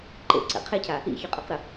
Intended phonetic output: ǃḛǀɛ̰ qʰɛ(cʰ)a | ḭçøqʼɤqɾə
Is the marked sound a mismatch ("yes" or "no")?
no